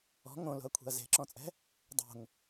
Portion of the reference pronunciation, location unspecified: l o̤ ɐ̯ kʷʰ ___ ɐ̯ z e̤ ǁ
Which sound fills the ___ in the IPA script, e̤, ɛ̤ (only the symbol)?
e̤